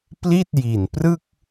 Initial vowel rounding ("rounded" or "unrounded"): unrounded